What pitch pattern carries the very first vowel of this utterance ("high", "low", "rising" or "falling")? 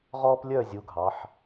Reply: high